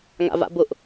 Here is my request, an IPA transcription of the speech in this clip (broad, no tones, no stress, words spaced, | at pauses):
ŋa̰va̰bʊʔ